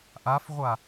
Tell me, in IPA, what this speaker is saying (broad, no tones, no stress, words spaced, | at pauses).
ʔafʁʷa